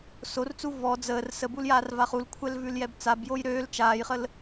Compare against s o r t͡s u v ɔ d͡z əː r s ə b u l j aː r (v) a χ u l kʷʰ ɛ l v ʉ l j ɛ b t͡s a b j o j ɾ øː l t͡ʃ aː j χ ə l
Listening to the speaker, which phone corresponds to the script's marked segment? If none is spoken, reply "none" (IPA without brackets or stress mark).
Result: v